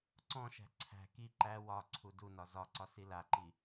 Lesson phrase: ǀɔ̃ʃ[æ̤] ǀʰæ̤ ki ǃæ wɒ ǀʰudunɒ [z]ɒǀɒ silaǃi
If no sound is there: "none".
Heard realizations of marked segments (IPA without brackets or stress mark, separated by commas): æ̤, z